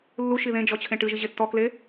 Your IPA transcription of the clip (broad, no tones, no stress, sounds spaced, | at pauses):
lː u ʃ i ð ẽ d͡ʒ ɔ t͡ɕʰ ẽ ʈ ɨ ʒ i ʑ e tː ɔ k l e